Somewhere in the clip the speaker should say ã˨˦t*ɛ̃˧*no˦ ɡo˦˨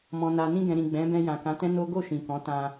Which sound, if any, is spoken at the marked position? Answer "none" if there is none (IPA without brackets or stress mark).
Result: ɛ̃˦